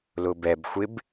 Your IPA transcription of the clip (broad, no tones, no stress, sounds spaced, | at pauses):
l ʊ b ɛ b xʷ ɪ b